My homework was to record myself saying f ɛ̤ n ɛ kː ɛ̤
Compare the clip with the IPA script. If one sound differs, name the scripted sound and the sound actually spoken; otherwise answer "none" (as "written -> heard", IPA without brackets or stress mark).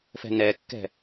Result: none